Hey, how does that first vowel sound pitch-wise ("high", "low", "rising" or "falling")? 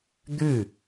falling